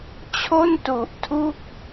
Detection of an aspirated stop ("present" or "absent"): present